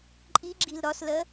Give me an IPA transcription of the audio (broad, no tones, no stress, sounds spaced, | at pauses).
ǃʼ i ɡ͡ǁ i l ɾ ɒ s l ɜ